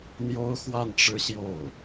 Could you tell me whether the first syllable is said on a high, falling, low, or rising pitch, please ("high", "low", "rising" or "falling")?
high